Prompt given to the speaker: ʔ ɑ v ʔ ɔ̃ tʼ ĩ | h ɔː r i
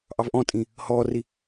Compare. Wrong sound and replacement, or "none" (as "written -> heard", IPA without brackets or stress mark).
none